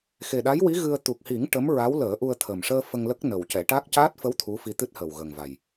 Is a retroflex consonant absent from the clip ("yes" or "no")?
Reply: no